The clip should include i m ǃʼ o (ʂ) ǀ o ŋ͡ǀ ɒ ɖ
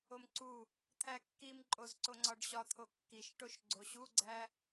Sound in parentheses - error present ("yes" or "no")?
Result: yes